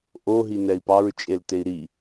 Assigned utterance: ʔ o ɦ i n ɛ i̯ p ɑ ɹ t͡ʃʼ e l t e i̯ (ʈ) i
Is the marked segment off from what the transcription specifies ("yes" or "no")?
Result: yes